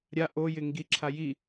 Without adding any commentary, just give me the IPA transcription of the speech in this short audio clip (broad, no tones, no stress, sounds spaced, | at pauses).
ɾʲ a ʔ o j ɪ ŋ ɡ i ǁʰ a j i